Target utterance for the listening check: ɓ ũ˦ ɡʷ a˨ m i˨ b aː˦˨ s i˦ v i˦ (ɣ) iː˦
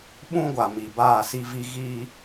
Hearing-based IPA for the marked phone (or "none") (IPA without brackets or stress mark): ɣ